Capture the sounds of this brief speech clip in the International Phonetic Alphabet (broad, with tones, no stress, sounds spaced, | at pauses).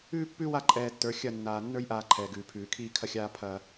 ʉː˦ pː ʉ˦ w a˦ ǃʼ ɛː˨ tː ə˞˨˦ xʲ ɐ˦˨ nː aː˨ nː ə˞˦ j ʔ aː˦ ǃʰ ɛː˨ ɡ ʉː˨ pʰ ʉː˨ kʰ iː˦ kʰ ɐ˦ xʲ aː˦ pʰ ɐ˦